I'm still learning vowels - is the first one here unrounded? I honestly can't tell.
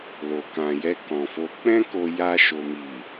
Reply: no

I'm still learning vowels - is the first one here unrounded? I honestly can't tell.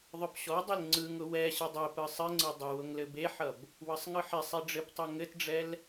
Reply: no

